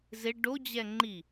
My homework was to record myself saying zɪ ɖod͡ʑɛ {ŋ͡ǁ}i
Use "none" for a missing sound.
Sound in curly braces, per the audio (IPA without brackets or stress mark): ŋ͡ǃ